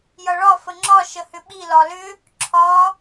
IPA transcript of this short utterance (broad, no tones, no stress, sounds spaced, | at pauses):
j ʌ ɭ ɒ f ə ŋ͡ǁ ɒ ʃ ə h ʏ ɓ i l ɒ l ʏ | ǁʰ ɒ